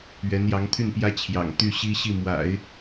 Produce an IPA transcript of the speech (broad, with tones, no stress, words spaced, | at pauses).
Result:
ɥɛ˧˥njɑ˧˥ŋt̪ʰy˥˩npjä˥ t͡ɕʰjɑ̰˨˩ŋt̪y˥˩ ɕi˥ɕi˥˩mwa̰˨˩˦ɪ̯